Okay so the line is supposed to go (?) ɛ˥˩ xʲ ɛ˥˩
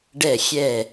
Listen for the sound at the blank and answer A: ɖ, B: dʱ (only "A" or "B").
A